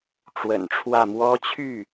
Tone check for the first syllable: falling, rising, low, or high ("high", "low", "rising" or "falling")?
low